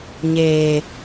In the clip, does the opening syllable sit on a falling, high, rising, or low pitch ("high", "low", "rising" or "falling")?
low